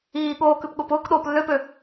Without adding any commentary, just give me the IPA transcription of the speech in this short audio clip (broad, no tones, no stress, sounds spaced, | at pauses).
iː ɠ oː k ʉ p ɠ ʊː p ʊː k ɗ oː p lː ø p ø